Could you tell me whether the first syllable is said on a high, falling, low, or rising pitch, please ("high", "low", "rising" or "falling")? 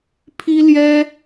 high